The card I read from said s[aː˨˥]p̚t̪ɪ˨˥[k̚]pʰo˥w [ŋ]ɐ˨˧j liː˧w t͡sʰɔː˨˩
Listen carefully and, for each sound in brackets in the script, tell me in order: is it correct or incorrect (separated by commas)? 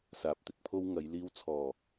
correct, correct, correct